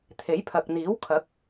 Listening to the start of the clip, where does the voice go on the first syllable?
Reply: rising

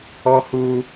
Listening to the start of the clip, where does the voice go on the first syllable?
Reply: high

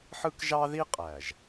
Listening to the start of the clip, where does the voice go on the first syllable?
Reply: high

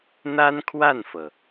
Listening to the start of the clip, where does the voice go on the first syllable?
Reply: high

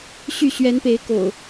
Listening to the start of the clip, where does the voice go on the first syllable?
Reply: falling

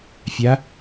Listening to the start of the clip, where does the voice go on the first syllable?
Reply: rising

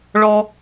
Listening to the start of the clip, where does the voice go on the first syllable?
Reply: high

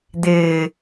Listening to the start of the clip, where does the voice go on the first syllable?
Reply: low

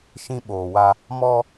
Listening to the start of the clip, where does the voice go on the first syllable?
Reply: high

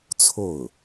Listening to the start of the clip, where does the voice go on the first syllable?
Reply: falling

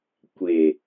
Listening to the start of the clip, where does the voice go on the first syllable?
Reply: low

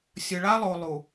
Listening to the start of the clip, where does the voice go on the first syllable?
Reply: low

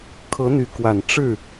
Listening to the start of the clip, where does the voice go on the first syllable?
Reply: rising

